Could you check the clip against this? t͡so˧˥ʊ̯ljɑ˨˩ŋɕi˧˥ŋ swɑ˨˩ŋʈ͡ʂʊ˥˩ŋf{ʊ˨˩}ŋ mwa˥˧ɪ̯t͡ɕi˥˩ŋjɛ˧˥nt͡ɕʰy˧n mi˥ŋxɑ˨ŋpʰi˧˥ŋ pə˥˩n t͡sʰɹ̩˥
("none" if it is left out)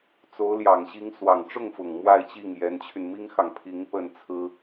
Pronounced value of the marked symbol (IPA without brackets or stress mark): ʊ˨˩